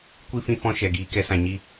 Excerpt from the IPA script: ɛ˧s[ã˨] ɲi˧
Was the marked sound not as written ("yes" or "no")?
no